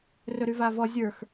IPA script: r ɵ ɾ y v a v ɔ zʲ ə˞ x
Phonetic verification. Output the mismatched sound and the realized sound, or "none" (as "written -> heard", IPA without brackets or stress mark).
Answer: none